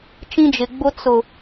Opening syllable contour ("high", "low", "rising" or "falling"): high